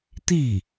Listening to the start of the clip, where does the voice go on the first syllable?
falling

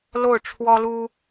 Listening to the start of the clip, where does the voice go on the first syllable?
falling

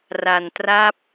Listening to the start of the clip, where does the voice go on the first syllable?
low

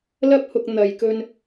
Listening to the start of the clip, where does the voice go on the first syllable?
high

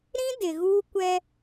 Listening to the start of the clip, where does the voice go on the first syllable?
high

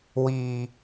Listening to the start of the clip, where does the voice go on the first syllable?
low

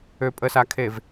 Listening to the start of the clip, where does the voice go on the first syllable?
low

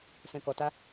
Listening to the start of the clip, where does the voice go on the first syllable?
low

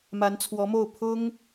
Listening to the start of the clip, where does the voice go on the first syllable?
rising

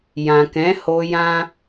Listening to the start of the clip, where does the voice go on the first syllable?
low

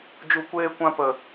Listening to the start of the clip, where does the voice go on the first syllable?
low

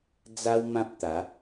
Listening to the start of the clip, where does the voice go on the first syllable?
high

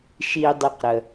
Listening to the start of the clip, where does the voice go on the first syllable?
high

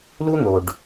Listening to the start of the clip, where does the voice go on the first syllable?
high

